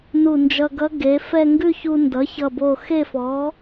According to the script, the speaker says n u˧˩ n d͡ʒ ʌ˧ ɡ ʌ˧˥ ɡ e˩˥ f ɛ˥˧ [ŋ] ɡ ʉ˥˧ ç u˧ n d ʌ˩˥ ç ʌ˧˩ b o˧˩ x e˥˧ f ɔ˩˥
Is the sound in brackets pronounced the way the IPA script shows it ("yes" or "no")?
yes